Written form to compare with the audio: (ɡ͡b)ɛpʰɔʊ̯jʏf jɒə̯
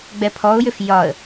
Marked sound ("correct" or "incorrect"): correct